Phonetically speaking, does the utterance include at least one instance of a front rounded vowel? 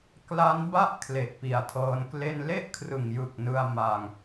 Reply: no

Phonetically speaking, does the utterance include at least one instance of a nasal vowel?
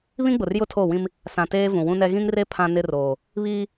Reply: yes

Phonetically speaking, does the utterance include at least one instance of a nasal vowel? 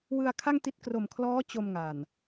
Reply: no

